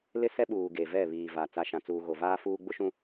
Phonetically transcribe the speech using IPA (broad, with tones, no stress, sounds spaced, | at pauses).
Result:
l ɪ˦ s ɛ˦ ɓ uː˨ ɡ e˨ v ɛ˦˨ β iː˨ v a˨ t͡s a˨ ʃ ã˨ t͡s uː˨ ɣ o˨ v aː˦ f uː˦ ɡ͡b ʊ˦ ʃ ũ˦